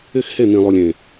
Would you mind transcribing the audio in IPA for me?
ɪ˦ x h e˦˨ n̪ ĩ˨ lˠ u˨ lʲ ẽ˨

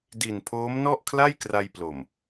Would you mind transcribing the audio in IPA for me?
d i˨˩ n pʰ oː˦˥ m n ɔ˥˩ ʔ kʰ l a˥˩ j k r a˧ j p l o˨˩ m

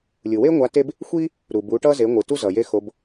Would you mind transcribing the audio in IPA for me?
lʲ ɯ˩ w e˥ ŋʷ a˧˥ t e˥ b | xʷ i˥ | ɾ u˩ b u˩˧ ʈ ʌ˧ z e˩˧ ŋʷ ɯ˩ t u˥ z ʌ˩ j e˥ x o˧˥ b

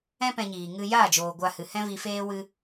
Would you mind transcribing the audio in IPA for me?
ɛ̃˦ p ɛ̃˧ ɲ iː˨ ŋ ɨ˧ j aː˦˨ d͡ʒ oː˨ ɡʷ a˧ h ɨ˨ h ɛ̃˦ v i˧ f eː˦ w ɨ˧

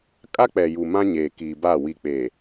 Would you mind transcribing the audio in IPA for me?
kʼ a˦ k͡p ɛ˨ j u˨ m ã˦ ɲ eː˨ k iː˨ b a˦˨ w i˨ k͡p e˨

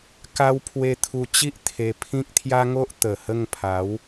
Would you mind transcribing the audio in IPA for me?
k a˦ w pʰ w e˧ t̪ʰ u˧ t͡ɕ i˦ ʔ t̪ʰ e˧ pʰ ĩ˦ k̚ t̪ʰ j a˦ ŋ o˦ ʔ t̪ ə˨˩ h ə˥˧ ŋ pʰ a˨˦ w

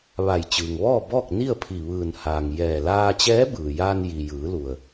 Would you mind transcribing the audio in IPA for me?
ʋ a˧˩ j t͡ɕ ɯː˩ ŋ ʋ ɔː˥˨ b ɔː˥˨ k̚ n i˥˨ ə̯ pʰ i˧˩ ʋ ɯː˧˩ n h aː˩ ŋ j ɛː˧˩ l aː˧ t͡ɕ ɛː˧˥ b ɯː˩ j aː˧ n j i˩ j ɯː˩˧ l u˩ ə̯

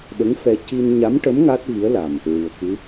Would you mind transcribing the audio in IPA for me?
ɓ ə˧˥ ŋ f ɛ˧ c i˧ n ɲ a˧˥ m ʈ ə˧˥ m ŋ a˦˥ t̚ v i˧˥ ə̯ l a˨˩ m | ɹ ɨ˨˩ ə̯ k ɨ˧˥

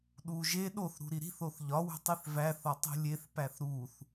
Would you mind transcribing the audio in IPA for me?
ɗ u ʒ e ɗ o θ ɾ ṳ ɾ i ɾ i̤ θ o θ ʎ ɒ w ṳ tˤ i θ v æ θ ɒ tˤ ṳ lʲ e θ p æ θ ɾ u θ

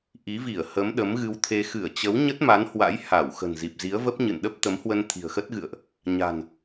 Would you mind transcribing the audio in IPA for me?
ʔ i˨˦ v i˧˩ ə̯ h ə˨˦ m ɗ ə˨˦ m ɣ ɨ˧ w t̪ʰ e˧ x ɨ˧˩ ə̯ t͡ɕ ə˨˦ w ɲ ə˦˥ t̚ m a˨˦ n h w a̰˧˥ j h a˧˩ w x ə̤˨˩ n z i˨˩ p̚ z i˨˦ ə̯ v ə˦˥ p̚ ɲ ɨ̰˧˨ n ɗ ə˦˥ p̚ t̪ ə˨˦ m h w ə˧ n t̪ʰ i̤˨˩ ə̯ x ə˦˥ t̚ ɣ ɨ̰˧˨ ə̯ ʔ | ɲ a̤˨˩ n

